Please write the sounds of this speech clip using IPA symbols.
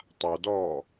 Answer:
tˤawdɔː

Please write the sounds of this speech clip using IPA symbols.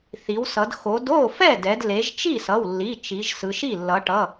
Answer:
θi˩˧wsʌ˩˧d xo˩˧d o˥˩ fɛ˥˩dɛ˩˧d le˩˧ʒt͡ʃi˥˩sʌ˩˧˩wlːi˩˧˩ t͡ʃi˩˧ʒsɯ˩˧ʃi˥˩ lːʌ˩˧ʈʌ˩˧˩

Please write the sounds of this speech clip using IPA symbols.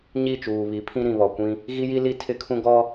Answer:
ɲi˦˨t͡ʃuː˨βi˨˦pʰĩ˦ ɾĩ˨βɔ˨kʷĩ˦ | ɣi˦ji˦li˦ tʰɪ˦kʰũ˦ ɡɔ˦

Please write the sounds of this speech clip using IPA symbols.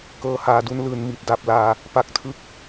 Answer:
kɤː˦˥haː˧du˦˥nlɯː˧n mi˨˩t̚da˨˩p̚laː˧ | pa˦˥k̚tʰɯ˥˩k̚

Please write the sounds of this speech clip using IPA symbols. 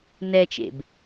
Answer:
nɛt͡ʃḛb

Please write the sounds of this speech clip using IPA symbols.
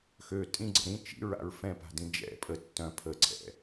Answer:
xø tʼĩɡ͡ǀə̰ ɾĩ t͡ʃḭɹa̰ɹ fɛ̃pa̤dĩ d͡ʒɛ̰ pʼə tːœ̃ pʰəǀʰɛ̰

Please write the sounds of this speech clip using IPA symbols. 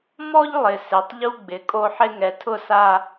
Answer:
mɔ˦ʎlˠɪ˨ se˨tˤʎu˦ɡ͡bɪ˨ kʼo˦ħɪ˦ ŋɛ˨tʰʊ˦˨sa˦

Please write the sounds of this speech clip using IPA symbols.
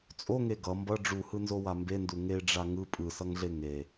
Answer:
t͡sʼoŋe ɡʌ mbʌ ɖ͡ʐuhɯnzowa mbendu ŋeɖ͡ʐa ŋɯ pʼɯsʌŋɮe ŋe

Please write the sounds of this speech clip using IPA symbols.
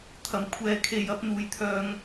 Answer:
t̪ʰɐ˨˩mkʷʰɛː˨kʰe˨jɐ˨˥p̚ n̪uː˨˩jt̪ʰœː˧ŋ

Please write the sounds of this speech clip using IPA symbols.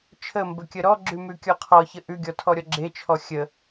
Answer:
t͡ʃʰəmbəkʲə ɾɔɡ͡ǁʉmʉkʲɔ qʰɔçə ʔʉɡʲɔtʰɔɾʲɔ ɡ͡ǁet͡ʃʰɔ xʲə

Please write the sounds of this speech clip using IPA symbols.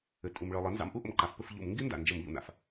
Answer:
ɘ˩tʼu˩mɭɯ˩ lˠɘ˩˧nzɑ̰˩˧m ʔu˥ʔə̰˩mǃa˩˧f pɘ˧f ʎṵ˧˩˧mŋɡi˥nda̰˩ nd͡ʒə˧˩˧mʎṵ˩n̪a̰˧˩˧f

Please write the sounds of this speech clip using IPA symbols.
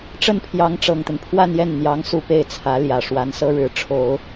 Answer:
ʈ͡ʂə˥˩npʰjɑ˧˥ŋʈ͡ʂɤ˨˩ŋt̪ə˦n pʰwa˥˧njɛ˥˩nn̪jɑ˧˥ŋ su˥˧pe˥˩ɪ̯t͡sʰä˧˥ljä˨˩ ʂwa˧˥nsɤ˥ɻɻ̩˧˥ ʈ͡ʂʰo˨˩˦ʊ̯

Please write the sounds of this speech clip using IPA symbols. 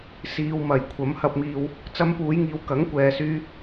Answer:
siː˨wmɐ˨˩j kʷʰɐ˨˥mhɐ˧p̚miː˧w | t͡sɐ˧mpuː˨˧jŋiː˨˧w kɐ˨˥ŋkʷɛː˨syː˧

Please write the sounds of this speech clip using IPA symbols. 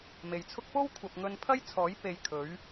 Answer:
me˨jt͡sʰʊ˥k̚ po˥w kʷʰɐ˨p̚ŋɵ˧npʰɐ˥jt͡sʰɔː˨˥j pe˧j kʰɵ˨˥ɥ

